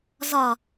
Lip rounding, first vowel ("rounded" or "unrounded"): rounded